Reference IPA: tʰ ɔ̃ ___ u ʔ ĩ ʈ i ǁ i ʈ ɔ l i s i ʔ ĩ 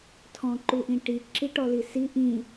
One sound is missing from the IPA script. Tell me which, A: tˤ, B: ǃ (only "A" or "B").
B